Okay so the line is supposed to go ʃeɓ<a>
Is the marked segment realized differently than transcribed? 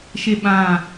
yes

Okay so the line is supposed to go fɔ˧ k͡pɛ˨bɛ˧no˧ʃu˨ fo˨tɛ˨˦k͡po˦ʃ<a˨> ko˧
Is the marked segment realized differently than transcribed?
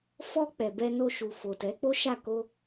yes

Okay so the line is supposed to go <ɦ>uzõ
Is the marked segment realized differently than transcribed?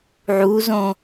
yes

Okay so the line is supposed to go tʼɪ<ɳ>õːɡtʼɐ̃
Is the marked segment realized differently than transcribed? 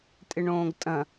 no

